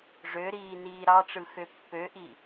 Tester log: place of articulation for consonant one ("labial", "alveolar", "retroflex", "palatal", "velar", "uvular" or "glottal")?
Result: retroflex